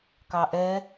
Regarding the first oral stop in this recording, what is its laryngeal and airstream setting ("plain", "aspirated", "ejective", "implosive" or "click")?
plain